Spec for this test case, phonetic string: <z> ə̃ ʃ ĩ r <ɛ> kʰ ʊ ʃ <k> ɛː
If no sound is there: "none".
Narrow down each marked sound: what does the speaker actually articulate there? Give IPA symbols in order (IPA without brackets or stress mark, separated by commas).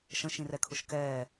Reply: ʃ, ɛ, k